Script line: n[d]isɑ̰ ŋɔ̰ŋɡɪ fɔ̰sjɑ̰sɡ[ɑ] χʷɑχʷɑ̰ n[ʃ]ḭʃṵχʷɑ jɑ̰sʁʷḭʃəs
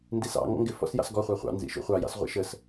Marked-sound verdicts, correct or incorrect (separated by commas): correct, incorrect, incorrect